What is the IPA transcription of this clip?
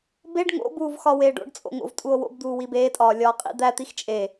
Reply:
b e ɖ ŋ o̰ b uː v x ɒ w eː ɖ o̰ ɖ t͡sʼ o̰ ŋ o̰ v tʼ u o̯ w o̰ b d̪ uː w i b eː tʼ ɒː lʲ ɒː qʼ ḭ d̪ æ t̪ i x t͡ʃʼ e

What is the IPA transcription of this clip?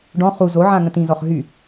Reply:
ɖ ɔ̃ χ u z o ʕ ã ŋ ə̃ t ĩ z ɔ χ ɦ y

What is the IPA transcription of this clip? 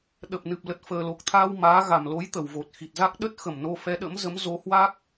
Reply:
ɗ ə˨˩ p̚ n ɨ˨˩ p̚ l ə˨˩ t̚ f əː˨˩ l o˨˩ k̚ t̪ʰ aː˧ w m aː˨˦ ɣ a˧˩ m l o˨˦ j t̪ ə˧˩ w v o˨˩ t̚ x i˨˩ t̚ z a˦˥ k̚ ɗ ə˦˥ t̚ x ə˧˩ m n o˧ f ɛ˨˦ ɗ ə̰˧˥ m z ə˨˦ m z o˨˦ h w a˦˥ k̚

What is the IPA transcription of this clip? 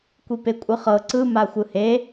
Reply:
kʷ i p e kʷʼ ɯ χ ɤ ǀ ɯ m a xʷ ɯ h e

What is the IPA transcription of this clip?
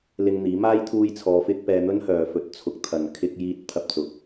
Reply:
l ɪ˧ ŋ n̪ iː˨˥ m aː˥ j t̪ʰ uː˧ j t͡sʰ ɔː˨˧ f ɪ˧ k̚ p ɛː˧ n̪ ɵ˥ n h œː˨ f ɵ˨˥ t̚ t͡sʰ ʊ˨ k̚ t̪ʰ ɐ˨ n kʰ ɪ˧ k̚ j iː˧ t̚ t̪ʰ ɐ˧ p̚ t͡s ʊ˨˥ k̚

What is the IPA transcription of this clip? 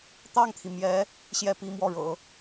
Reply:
t̪ ɑ˥˩ ŋ t̪ʰ i˩ m j ɛ˧˥ | ɕ j ɛ˥˩ p i˧˥ m w ɔ˥˩ ɻ ɤ̰˨˩˦

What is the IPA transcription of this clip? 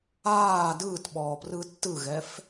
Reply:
aː d ɯː t ɓ ɔː p r ɯ tː ɯ ɣ ɛ f

